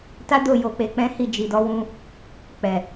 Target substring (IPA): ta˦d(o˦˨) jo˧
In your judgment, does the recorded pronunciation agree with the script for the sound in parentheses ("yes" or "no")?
yes